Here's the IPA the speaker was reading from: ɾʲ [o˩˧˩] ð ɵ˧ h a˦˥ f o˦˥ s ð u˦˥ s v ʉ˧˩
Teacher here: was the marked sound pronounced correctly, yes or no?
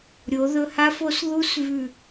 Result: no